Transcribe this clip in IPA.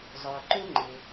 zˤœ˩ǃø˥ŋ͡ǃe˩

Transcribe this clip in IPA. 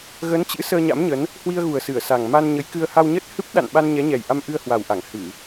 ɣə˨˦nt͡ɕɨ̰˧˥ səː˧ɲa̰˧˥mɲə˨˦n | hwi˧ə̯ɣu˨˩ə̯ sɨ˧˩ə̯sa˨˩ŋ ma˧nɲə˨˦jkɨ˧ə̯ ha˧wɲə˦˥t̚ hɨ˦˥p̚ɗa̰˧˨nɓa˧n ɲɛ˨˦ɲɛ˨˩jʔa˧m ʔɨ˧ə̯hwa˨˩wʔa˧˩ŋ hɨ˧˩˨

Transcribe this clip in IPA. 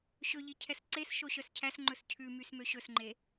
ɕɵʎi cʰɛsǀesʃo ɕœscʰæsŋ͡ǃɵs cʰʉ mysmøɕɵsŋ͡ǃe

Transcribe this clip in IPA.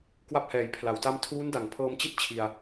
kwa˥˩p̚hɛː˨˩jpʰla˩˦wta˥˩m tʰuː˦˥nda˨˩ŋpʰɤː˧mt͡ɕi˥˩t̚ t͡ɕʰi˧a̯

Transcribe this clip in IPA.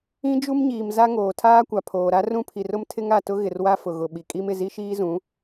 ĩ˦d͡ʒu˦mɲiː˨m za˦ŋoː˨ tʰaː˦kʷa˨pʰoː˨ ɾa˦rũ˦pʰi˨rʊ˦m tʰɪ˦ŋa˨tʊ˦ ɣɪ˨rwa˦ fʊ˨ɣʊ˨ɓi˨kʼi˦m ɪ˨zi˦ʃiː˦zũ˨˦

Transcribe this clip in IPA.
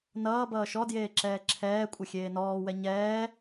nʌː bʌːʃɔdjeː ǁɛːǁʰɛːkʷʼə xʲeːnɔːwɛ ɲɛː

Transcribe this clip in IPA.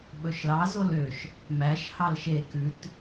ɓɵʃlɑ zoløʃ | mæʃ hɑlʃe kʉt

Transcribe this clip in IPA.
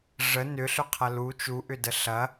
ʐə nʏɬʏqʰɐ lu t͡ʃuʔʏdə ɬɐ

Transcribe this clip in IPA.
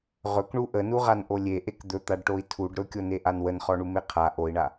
ʁɵkɳu ʔənuʁanʔo lʲeʔek d̪ɵt̪aɖʈoi̯ tʰuɖ ɾɵkʲoneʔan wənχɔɳume qʰa ʔoi̯ɳa

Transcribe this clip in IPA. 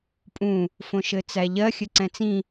pʼũ | fõʃɘt͡sæʎɜ xʲɘǀɛ̃t͡sĩ

